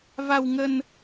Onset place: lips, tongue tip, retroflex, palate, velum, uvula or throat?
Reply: lips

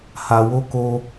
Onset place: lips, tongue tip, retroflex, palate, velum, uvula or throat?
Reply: throat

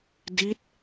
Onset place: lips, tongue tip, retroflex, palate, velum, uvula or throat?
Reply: tongue tip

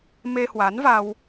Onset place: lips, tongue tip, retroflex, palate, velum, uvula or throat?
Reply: lips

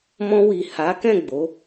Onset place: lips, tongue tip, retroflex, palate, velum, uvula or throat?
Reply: lips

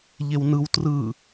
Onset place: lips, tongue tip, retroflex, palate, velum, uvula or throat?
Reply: palate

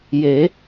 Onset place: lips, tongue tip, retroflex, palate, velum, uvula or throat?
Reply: palate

